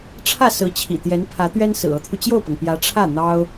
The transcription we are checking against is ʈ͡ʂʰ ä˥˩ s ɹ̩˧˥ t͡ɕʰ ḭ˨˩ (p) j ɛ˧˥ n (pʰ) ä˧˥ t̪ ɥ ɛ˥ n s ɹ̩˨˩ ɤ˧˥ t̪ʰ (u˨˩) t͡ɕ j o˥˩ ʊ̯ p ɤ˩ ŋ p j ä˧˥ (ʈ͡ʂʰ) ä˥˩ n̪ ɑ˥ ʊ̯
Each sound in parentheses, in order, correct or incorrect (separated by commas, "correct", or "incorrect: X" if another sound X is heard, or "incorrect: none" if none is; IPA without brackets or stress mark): incorrect: t̪, correct, incorrect: u˧, correct